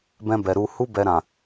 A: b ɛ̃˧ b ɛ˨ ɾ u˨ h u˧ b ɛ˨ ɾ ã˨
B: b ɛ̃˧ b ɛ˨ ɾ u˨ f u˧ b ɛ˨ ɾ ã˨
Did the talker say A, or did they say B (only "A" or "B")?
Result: A